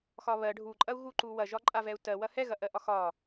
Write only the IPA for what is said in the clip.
x ɒ β ɜ ɖʱ u ǃʼ ɐ u̯ ɣ u ǃ u w ɐ ʒ ɒ ǃʼ a v ɛ u̯ t ɜ w ɐ h ɛ ɣ ɐ ʔ ɜ ʔ ɒ x ɒ

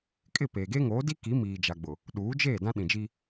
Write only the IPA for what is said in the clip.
kʼ ɪ˦˨ p eː˨ ɡ e˦ ŋ oː˨˦ d i˦ k i˨˦ m iː˨ d͡ʒ a˨ ɡ͡b ʊ˨ | ɗ uː˨˦ d͡ʒ eː˦˨ d ã˦ ɗ ĩ˨ d͡ʒ i˦

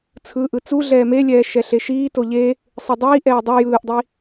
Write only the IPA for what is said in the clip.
t͡sʰ ɯ ʔ ɯ t͡s u ɮ ɛː m e lʲ ɛː ʃ ɛ ɬ e ʃ iː t o ʎ e | sˤ ɯ dˤ iː ʔ ɛː dˤ o j ɯː ʔ dˤ i

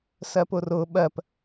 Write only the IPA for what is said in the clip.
s ɜ p ʊ r ʊ ɓ ɜ p

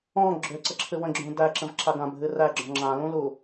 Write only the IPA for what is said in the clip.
ɔ̃ ɡ͡ǁ ø ǀ ə ǁʰ ɨ w ə̃ ɡ͡ǁ ũ d æ ǁ ə̃ v ǁ a ɡ ã bʱ ɨ r æ ɡ͡ǁ ɔ̃ ŋ͡ǁ ã l ũ l u

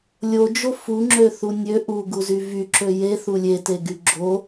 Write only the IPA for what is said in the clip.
lʲ o d͡ʒ o f u ŋ͡ǁ ø θ u nʲ ø ʔ u ɡ u z y v y ǁ ø j e θ u lʲ e t e ɡ y ɡ͡ǁ o

